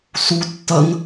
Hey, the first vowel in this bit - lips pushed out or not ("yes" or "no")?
yes